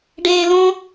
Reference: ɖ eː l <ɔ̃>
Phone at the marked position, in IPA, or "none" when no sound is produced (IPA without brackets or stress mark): õ